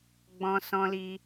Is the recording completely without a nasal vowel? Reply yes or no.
no